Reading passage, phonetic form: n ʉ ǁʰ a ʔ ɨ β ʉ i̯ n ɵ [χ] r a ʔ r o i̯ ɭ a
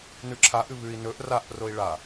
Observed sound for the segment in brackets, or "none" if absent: ʔ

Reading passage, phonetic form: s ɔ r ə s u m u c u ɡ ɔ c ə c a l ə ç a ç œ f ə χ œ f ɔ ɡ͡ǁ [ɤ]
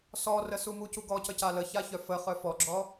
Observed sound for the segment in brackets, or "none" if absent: ɔ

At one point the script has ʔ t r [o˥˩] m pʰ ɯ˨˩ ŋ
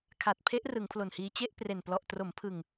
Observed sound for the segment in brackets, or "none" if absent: o˩˦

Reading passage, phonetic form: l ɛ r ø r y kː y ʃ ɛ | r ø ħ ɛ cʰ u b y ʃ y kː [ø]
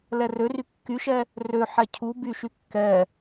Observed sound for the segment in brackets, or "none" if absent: ɛ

